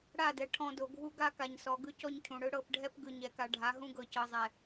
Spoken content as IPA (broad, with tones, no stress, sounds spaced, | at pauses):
ɽ a˦˨ d ɛ˨ ʈʰ ɔ̃˨ d o˨ ɡʱ u˦ ɡ a˦ k a˨ ɲ s ɔ˨ ɡ ɯ˦ c ɔ˦ ɲ cʰ ũ˨ ɽ ɯ˦ ɽ ɤ˦˨ p ɖʱ ɛ˦ p ɡ ɯ˨ ɲ ɛ˨ k a˨ ɖʱ a˨˦ ɦ ũ˦ ɡ ɤ˨ c ɤ˨ zˤ ɛ˨